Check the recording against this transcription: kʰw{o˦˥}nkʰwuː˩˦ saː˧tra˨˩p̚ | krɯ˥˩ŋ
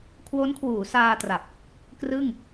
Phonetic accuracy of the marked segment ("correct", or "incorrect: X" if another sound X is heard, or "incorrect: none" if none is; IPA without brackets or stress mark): correct